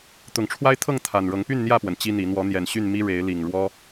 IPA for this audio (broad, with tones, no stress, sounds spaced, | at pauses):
t̪ ʊ˨˩ ŋ ʈ͡ʂʰ w a˦ ɪ̯ t̪ʰ ɤ˥˨ ŋ t̪ʰ a˨˩ n ɻ ɤ˨˦ ŋ p y˥˨ n n̪ j ä˥˨ p w ə˩ n t͡ɕ i˦ n̪ i˨˦ n̪ w ɔ˨˦ n̪ j ɛ˨˩ n ɕ y˥˨ n m i˦ ɻ e˨˦ ɪ̯ l i˨˩ ŋ ɻ w ɔ˦